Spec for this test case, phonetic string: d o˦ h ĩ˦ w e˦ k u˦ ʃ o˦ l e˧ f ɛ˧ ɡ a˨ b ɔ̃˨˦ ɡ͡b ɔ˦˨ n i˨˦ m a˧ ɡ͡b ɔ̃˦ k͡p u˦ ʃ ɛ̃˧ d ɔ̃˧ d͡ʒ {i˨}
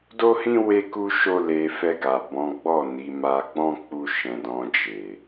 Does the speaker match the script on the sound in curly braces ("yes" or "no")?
no